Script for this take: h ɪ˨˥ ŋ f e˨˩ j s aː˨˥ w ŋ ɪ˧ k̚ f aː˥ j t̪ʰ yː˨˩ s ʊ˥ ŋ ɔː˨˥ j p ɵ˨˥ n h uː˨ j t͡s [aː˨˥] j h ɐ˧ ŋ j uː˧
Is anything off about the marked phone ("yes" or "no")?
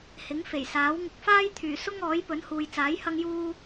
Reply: no